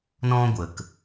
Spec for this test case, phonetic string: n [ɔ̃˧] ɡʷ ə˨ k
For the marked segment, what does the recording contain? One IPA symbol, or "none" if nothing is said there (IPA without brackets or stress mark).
ɔ̃˧